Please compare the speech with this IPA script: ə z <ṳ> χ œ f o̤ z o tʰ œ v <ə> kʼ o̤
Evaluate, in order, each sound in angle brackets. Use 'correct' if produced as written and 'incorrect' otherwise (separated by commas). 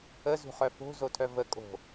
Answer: correct, correct